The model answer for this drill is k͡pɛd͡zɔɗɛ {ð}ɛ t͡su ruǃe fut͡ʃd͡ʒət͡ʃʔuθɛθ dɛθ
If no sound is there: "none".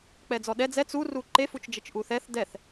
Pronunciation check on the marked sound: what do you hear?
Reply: d͡z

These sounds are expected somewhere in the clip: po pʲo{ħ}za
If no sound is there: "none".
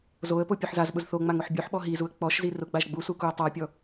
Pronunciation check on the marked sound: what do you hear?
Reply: ħ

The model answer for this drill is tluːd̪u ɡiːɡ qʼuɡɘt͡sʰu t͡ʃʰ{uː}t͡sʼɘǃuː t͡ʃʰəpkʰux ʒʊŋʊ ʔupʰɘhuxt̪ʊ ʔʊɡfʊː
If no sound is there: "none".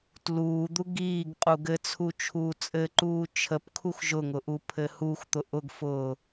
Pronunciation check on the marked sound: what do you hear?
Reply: uː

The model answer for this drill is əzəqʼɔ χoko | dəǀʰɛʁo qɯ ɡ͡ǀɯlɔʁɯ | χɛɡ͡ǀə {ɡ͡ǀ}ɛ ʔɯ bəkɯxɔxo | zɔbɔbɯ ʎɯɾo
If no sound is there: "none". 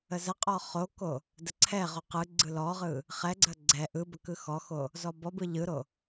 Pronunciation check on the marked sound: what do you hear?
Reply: ɡ͡ǀ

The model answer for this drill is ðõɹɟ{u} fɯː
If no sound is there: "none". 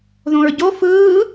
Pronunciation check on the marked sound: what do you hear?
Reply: o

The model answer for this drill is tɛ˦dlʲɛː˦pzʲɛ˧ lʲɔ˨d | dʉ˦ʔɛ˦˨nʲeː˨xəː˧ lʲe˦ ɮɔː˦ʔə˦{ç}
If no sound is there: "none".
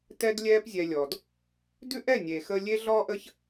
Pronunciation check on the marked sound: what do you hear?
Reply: ç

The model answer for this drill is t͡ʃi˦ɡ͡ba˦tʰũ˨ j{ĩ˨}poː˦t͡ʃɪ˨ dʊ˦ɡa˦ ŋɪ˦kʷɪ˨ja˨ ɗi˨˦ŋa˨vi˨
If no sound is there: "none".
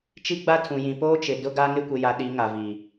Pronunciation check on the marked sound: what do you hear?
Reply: ĩ˨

